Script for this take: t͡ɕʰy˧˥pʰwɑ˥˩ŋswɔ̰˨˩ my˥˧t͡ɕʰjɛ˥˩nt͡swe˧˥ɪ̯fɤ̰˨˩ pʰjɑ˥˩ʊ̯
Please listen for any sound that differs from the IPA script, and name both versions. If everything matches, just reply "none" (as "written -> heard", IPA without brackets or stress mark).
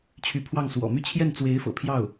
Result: none